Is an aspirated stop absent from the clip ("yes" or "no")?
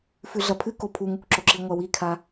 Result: no